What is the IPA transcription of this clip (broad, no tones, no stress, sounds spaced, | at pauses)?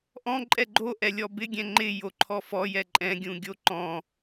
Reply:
ʔ ɔ̃ ǃʼ ɛ ɡ͡ǃ o ʔ ɛ lʲ ɔ b ɪ ɡʲ ɛ̃ ŋ͡ǃ ɪ j o ǃʰ ɔ f ɔ j ɛ ǃʼ ɛ̃ ɡʲ ũ ɡʲ o ǃ ɔ̃